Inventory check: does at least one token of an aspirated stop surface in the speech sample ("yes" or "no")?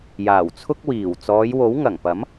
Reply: yes